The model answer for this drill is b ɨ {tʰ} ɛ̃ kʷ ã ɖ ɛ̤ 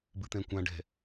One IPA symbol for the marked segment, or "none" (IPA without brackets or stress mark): t̪